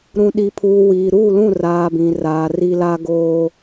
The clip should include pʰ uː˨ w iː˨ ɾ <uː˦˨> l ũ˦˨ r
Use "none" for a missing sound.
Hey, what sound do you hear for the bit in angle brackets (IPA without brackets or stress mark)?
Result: uː˦˨